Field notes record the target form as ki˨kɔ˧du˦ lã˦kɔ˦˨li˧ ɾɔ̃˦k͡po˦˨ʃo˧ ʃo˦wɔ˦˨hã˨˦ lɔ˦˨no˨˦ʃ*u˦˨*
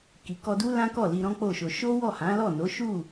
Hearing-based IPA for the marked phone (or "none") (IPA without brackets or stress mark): u˦˨